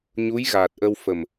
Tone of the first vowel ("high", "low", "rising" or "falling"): rising